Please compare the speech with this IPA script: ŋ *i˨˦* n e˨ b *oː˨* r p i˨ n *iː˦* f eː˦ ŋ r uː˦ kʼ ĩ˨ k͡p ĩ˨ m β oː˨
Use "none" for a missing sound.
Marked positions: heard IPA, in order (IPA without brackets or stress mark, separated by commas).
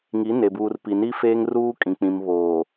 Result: i˨˦, uː˨, i˦